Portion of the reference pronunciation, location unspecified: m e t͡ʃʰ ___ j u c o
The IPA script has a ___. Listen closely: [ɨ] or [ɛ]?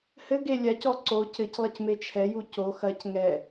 ɛ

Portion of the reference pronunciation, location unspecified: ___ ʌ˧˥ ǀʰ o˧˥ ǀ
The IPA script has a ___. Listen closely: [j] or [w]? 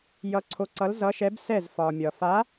j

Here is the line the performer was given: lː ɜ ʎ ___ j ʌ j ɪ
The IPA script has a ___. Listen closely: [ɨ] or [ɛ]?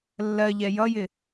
ɛ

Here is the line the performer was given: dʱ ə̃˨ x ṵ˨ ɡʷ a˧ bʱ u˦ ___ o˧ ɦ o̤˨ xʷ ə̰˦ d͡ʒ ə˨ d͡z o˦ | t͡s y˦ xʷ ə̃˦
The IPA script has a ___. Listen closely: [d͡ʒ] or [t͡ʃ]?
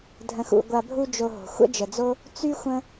d͡ʒ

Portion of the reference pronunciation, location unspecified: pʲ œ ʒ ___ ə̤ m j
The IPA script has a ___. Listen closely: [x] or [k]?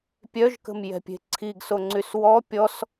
k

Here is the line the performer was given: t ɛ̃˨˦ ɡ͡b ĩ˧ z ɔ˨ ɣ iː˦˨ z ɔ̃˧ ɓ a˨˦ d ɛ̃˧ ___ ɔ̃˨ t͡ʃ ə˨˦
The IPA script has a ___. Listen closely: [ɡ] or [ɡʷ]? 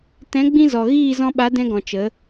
ɡ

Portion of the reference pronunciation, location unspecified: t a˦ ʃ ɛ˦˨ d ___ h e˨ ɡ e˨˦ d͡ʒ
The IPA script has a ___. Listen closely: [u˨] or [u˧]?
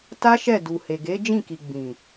u˨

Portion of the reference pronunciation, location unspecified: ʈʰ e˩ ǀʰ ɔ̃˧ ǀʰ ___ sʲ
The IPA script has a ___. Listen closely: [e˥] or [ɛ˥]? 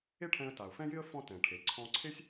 e˥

